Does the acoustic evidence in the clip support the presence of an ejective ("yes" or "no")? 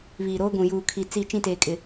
yes